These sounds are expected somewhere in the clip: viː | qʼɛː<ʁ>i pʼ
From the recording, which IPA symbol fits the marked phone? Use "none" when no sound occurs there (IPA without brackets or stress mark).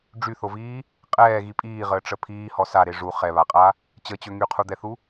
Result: ɣ